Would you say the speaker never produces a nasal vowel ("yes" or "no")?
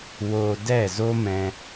no